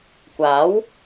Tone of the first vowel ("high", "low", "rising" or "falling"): rising